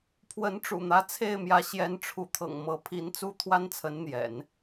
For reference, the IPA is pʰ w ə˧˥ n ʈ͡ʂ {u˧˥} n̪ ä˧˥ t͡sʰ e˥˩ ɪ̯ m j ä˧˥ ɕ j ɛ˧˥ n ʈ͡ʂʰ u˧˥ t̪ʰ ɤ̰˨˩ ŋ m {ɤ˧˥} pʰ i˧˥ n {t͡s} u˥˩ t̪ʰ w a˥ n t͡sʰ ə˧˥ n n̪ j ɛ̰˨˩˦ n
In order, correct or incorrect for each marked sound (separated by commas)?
incorrect, correct, correct